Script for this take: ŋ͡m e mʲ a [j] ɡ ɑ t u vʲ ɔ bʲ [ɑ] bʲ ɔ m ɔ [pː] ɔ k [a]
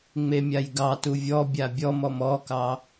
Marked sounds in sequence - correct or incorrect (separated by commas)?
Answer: correct, incorrect, incorrect, incorrect